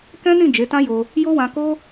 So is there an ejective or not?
no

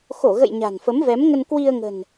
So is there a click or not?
no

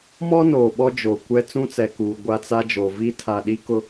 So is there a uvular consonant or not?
no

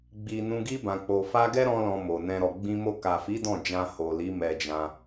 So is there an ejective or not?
no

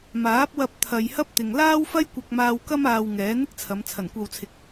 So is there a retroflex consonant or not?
no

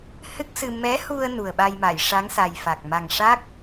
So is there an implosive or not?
yes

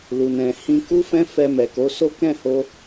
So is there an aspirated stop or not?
no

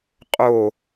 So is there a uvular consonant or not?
yes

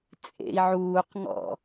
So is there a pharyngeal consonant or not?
yes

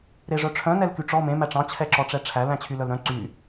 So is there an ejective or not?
no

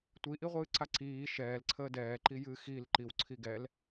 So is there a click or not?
yes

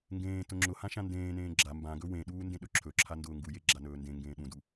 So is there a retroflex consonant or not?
no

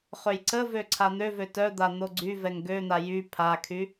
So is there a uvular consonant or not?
yes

